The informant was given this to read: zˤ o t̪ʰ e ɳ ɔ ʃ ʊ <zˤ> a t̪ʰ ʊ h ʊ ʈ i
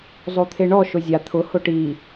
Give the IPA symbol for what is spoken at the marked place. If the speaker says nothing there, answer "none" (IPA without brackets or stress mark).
zʲ